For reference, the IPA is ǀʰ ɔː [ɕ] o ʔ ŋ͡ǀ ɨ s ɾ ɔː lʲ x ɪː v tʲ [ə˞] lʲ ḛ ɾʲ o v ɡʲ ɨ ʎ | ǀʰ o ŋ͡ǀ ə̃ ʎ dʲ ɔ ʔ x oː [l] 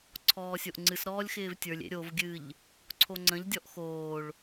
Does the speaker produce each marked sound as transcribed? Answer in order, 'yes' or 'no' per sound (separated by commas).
no, yes, no